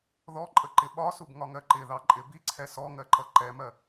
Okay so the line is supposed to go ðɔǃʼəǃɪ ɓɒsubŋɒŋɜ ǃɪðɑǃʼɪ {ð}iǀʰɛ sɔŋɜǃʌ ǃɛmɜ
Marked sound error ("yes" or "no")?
yes